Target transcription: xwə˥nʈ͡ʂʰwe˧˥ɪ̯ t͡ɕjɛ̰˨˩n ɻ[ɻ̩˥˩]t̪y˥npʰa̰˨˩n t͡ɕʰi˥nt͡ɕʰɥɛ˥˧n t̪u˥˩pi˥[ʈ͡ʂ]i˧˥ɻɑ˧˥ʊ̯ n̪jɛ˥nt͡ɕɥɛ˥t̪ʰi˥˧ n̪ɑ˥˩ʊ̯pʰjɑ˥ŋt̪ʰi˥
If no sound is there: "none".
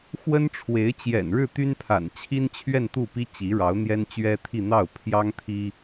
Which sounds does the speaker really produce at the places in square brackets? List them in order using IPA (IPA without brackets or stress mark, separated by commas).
ɻ̩˥˩, t͡ɕ